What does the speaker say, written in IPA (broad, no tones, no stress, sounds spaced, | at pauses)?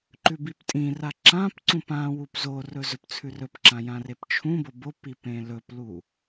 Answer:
ǃ ʉ b i p tʼ ĩ r a ǁ ã p ǀ ũ p ã w u p z o r ɵ z ɵ p t͡sʰ ʉ r ɵ p ǁ ã j ã r e p t͡ʃʰ ũ b o b o p i p ẽ l ɵ p l u